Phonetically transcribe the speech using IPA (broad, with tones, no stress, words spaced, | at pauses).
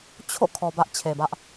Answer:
t͡ɕʰo̰˦˨ kʰɔ˨bä˦ʔ t͡ɕʰe˨bä˦ʔ